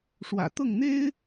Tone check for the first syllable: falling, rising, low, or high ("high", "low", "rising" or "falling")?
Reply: low